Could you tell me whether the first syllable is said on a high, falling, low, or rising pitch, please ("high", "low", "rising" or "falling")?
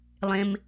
high